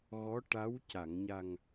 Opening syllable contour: rising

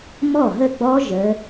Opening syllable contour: falling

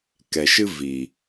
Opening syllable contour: low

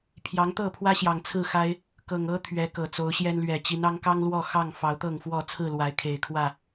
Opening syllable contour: rising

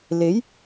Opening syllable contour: rising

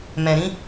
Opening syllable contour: low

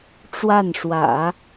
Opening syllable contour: falling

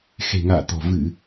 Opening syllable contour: low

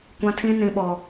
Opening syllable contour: high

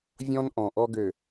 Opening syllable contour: high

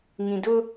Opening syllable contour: low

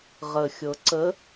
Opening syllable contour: low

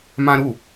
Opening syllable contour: high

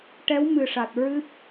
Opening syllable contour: rising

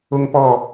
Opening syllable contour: high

